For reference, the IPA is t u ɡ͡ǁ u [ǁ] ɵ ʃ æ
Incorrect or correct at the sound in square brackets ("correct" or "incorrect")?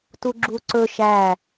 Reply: incorrect